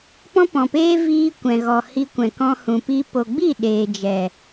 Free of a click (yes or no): yes